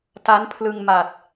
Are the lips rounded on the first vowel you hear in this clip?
no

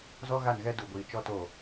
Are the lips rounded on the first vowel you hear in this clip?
yes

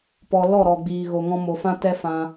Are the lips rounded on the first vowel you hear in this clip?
yes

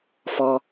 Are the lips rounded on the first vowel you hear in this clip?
yes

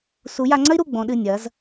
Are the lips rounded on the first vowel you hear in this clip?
yes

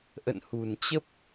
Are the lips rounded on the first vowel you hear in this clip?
no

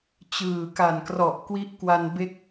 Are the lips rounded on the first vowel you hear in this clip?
no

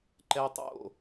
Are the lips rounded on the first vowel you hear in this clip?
no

